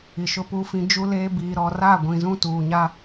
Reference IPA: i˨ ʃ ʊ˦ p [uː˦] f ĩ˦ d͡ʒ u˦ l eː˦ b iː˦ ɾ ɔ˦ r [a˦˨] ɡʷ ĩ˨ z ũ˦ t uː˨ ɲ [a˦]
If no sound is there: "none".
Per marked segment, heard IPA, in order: uː˦, aː˦˨, a˦

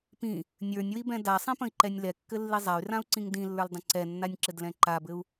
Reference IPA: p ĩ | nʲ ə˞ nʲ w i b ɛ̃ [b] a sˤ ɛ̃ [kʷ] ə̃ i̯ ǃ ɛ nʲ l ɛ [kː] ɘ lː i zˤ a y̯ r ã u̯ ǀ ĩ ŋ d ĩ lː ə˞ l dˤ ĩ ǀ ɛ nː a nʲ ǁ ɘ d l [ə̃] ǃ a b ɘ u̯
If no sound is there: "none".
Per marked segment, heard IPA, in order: d, p, kː, ɛ̃

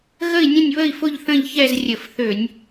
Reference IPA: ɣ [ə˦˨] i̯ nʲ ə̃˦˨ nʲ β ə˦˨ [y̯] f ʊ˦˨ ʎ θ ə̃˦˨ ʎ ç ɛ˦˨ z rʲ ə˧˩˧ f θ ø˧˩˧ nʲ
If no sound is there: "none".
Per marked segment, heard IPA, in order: ə˦˨, i̯

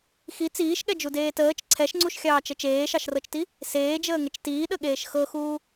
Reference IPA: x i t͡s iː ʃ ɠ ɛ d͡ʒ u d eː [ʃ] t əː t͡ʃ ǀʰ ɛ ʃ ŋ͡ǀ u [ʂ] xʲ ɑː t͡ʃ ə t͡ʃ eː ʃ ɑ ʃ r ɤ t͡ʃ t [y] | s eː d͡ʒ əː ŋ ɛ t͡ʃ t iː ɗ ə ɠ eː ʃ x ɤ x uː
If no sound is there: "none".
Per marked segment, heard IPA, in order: none, ʃ, i

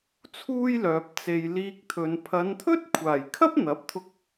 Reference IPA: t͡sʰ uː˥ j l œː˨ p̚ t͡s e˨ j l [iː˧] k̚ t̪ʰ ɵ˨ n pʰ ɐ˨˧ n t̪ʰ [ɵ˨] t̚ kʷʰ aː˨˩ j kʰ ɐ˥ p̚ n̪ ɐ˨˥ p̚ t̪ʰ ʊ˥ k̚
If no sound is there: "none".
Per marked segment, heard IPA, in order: iː˧, ɵ˥

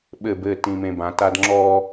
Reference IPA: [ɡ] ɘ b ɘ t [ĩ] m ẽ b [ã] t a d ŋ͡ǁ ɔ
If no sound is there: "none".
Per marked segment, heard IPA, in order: ɓ, ĩ, ã

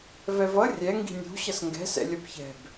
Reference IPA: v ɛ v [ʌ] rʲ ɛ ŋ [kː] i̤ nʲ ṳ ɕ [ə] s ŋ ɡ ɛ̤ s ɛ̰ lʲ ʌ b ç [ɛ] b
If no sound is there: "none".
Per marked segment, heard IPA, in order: ʌ, ɡ, ʌ, ɛ̤

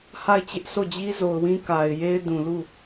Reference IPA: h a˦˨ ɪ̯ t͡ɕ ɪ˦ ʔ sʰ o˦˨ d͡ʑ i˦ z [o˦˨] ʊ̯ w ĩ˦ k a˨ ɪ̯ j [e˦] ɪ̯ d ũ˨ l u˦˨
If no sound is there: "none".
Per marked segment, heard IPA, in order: o˨, e˦

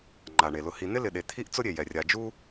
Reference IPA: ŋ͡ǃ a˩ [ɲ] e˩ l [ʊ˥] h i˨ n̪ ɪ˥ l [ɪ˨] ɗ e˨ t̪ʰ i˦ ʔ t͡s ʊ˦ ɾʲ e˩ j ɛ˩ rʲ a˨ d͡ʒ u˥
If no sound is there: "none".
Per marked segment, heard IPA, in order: ɳ, ʊ˨, ɪ˨

